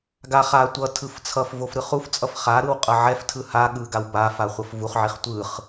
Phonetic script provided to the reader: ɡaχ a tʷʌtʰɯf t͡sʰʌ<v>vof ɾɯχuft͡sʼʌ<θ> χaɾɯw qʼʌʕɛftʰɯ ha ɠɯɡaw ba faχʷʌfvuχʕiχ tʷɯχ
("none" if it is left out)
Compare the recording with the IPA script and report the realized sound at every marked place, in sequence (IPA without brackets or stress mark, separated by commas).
f, f